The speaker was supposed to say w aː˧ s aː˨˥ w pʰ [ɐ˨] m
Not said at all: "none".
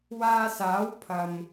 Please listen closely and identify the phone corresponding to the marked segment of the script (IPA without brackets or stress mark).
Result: ɐ˨